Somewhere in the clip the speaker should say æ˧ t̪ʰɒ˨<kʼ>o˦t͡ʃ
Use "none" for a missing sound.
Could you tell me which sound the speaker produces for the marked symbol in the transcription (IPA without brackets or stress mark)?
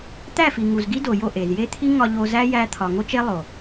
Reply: ŋ